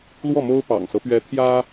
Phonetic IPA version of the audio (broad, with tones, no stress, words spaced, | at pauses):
lwɔ˥˩mo˥ʊ̯ pɑ̰˨˩ŋsɤ˦pɥɛ˧˥ t̪ʰjä˥